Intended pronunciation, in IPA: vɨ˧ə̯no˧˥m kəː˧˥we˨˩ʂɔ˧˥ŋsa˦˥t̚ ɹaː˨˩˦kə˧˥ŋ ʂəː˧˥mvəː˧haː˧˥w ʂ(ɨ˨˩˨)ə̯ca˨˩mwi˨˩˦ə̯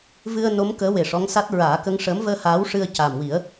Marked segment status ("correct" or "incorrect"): incorrect